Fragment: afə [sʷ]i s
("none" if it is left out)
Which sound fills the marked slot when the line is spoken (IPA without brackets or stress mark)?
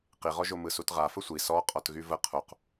sʷ